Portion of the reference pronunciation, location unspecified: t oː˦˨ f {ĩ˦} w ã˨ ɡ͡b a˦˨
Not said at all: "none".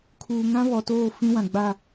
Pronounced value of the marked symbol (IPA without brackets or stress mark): ĩ˦